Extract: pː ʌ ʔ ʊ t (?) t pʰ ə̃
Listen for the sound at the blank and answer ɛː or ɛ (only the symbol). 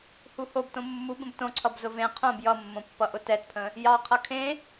ɛ